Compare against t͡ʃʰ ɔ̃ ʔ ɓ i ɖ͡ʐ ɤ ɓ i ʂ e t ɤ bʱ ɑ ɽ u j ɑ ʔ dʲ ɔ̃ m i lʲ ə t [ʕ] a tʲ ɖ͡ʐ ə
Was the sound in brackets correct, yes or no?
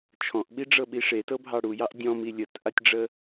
no